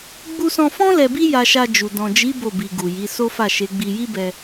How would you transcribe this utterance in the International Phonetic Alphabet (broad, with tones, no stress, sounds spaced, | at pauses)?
ɡ͡b u˧ s ɔ̃˧ f ɔ̃˦ l ɛ˧ b i˦ j a˧ ʃ a˧ d͡ʒ u˨ d ɔ̃˨ d͡ʒ i˨˦ b o˦˨ b i˨ ɡ u˨ j i˨˦ s o˦ f a˦˨ ʃ e˨˦ ɡ͡b i˧ j i˦ b ɛ˧